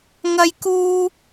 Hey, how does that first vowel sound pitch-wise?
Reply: high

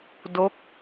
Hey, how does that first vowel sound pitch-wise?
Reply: falling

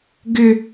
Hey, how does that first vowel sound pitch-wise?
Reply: high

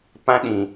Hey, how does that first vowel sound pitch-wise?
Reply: high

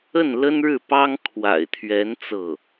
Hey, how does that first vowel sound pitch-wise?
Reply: falling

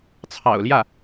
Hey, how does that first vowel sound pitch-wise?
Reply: low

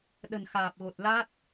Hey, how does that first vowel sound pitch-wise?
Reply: low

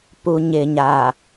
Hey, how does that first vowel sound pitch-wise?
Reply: low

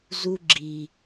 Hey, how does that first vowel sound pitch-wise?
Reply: high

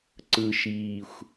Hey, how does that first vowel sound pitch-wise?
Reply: low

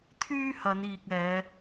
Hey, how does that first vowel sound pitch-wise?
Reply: high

